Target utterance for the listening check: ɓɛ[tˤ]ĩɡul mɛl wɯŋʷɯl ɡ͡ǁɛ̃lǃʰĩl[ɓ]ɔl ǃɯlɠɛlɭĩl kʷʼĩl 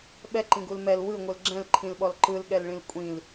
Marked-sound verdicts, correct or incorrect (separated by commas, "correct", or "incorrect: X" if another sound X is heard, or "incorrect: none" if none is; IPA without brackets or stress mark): incorrect: ǃ, correct